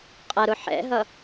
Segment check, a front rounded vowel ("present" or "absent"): absent